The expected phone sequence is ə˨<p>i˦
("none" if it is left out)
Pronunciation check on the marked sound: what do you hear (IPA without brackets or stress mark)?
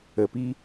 p